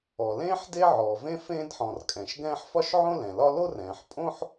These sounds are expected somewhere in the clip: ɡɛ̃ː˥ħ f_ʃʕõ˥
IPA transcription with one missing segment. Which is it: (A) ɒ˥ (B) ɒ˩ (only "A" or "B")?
A